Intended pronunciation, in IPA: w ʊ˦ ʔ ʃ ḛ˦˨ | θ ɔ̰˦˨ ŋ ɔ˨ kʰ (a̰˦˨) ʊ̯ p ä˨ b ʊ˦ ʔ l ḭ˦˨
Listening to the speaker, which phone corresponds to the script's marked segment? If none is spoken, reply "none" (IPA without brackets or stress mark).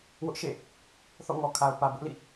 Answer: a˨